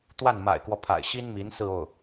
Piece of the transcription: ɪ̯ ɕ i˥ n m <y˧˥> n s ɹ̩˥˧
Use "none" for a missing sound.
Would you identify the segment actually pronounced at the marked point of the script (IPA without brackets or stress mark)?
i˧˥